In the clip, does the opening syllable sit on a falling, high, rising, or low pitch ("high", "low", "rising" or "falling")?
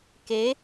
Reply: rising